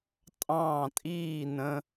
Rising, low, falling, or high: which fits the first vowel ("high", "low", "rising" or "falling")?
falling